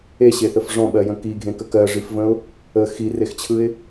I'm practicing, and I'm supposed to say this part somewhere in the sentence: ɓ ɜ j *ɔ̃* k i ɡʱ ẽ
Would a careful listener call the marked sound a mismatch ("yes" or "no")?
yes